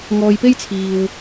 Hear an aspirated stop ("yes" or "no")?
yes